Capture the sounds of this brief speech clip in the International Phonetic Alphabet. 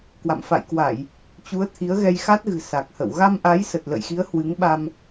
k w a̰˧˨ m f a̰˧˨ j k w a˧˩˨ j | t͡ɕ u˨˦ ə̯ t̪ʰ i˨˦ ə̯ ɣ ɛ˧ j x a˦˥ t̚ ɣ ɨ̤˨˩ s a˨˩ k̚ h ə̰˧˨ w ɣ a˧ m ʔ a˨˦ j s ə˨˩ t̚ l ə̰˧˨ j x i˨˦ ə̯ h w ɨ˨˦ ŋ ɓ a˧ m

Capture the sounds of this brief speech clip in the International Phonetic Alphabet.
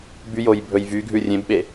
b y j o j bʱ ɵ j v y ɡʱ ʉ rʲ ẽ b ɓ e

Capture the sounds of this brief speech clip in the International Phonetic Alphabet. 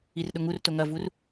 i r ɗ ʊ ŋ u r t o ŋ ɐ v u r

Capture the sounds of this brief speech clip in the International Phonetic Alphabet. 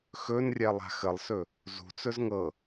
x ɵ n rʲ ɛ lˠ a̤ x ə lˠ s ɵ | z ṳ t͡s ɵ z ŋ ɤ

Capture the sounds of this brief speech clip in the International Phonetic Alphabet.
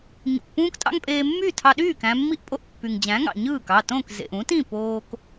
ɲ ṵ˩ k p ũː˥ k tʼ ɑ̰˥ ŋ pʼ eː˧ mː y˥˩ tʰ ɑ˧ ɗ yː˥˩ k æ̃˧ mː i˥˩ ʔ pʼ o˥˩ ʔ pː y˩ ŋ d͡ʑ æ̃˩˥ ŋ ɑ̰˩ ɲ ɯː˥˩ k ɑ˥˩ t õ˥˩ k z ḛ˩ ʔ ũ˩˥ t ĩ˥˩ p oː˧ k

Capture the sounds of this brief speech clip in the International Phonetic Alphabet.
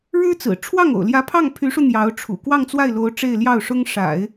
ɻ ɻ̩˥ t͡s ɹ̩˨˩ ʈ͡ʂʰ w ɑ˥˩ ŋ o̰˨˩ ʊ̯ l j ä˧˥ pʰ ɑ˥˩ ŋ pʰ y˧˥ ʂ u˧ n̪ j ɑ˧˥ ʊ̯ ʈ͡ʂʰ ṵ˨˩ k w ɑ˥˧ ŋ t͡s w a˥˩ ɪ̯ l o˧˥ ʊ̯ ʈ͡ʂ e˥˧ ɪ̯ l j ɑ˥˩ ʊ̯ ʂ ʊ˥ ŋ ʂ a̰˨˩˦ ɪ̯

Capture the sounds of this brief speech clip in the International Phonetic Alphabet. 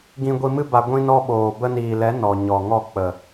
ɡ ĩ˧ ɡʷ i˧ m ɨ˦ b a˧ ɡʷ ĩ˧ n ɔ˧ ɓ oː˨ b ə˧ n iː˨ l ɛ˨˦ n ɔ˨ ɲ ɔ˨ ŋ ɔ˦˨ k͡p ə˨

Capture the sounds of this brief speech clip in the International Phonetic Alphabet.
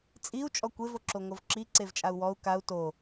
t͡sʼ i u̯ t͡ʃʼ ɔ kʷ e v o ǁ o ŋ o v ǁ i ǀ e v t͡ʃʼ a u̯ w ɔ u̯ k a u̯ t o

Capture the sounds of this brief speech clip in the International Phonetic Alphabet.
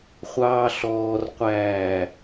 χʷ ɑː ɬ ɔː r qʷ æː

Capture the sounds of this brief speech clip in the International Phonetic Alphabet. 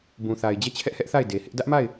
b ũ˨ θ a˨ ɪ̯ d͡ʑ ɛ˦˨ t͡ɕʰ ɛ˦ ʔ h ɛ˦ ʔ θ a˦˨ ɪ̯ d e˨ h ɪ˦ ʔ d ä˦ ʔ m a˦˨ ɪ̯

